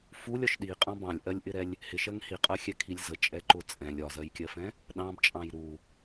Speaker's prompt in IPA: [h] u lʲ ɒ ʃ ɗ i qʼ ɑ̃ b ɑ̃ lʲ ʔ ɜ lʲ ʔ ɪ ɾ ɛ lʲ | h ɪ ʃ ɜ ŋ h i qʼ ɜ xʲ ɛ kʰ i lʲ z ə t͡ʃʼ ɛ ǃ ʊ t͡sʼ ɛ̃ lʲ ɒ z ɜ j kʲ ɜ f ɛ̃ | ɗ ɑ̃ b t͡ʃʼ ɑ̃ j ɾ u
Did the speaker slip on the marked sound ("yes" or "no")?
yes